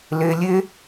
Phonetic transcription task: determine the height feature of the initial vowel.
mid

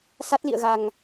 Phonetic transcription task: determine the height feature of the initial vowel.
low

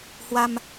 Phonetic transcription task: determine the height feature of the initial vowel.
low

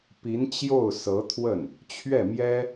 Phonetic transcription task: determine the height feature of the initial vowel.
high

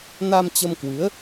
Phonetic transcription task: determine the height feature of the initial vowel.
low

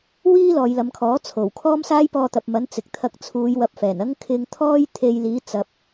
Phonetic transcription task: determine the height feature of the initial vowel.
high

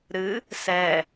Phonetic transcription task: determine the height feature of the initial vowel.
high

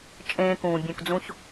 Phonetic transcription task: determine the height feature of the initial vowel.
mid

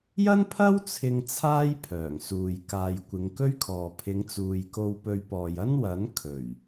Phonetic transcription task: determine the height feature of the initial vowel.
low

